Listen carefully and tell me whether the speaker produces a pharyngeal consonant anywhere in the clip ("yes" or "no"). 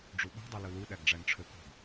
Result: no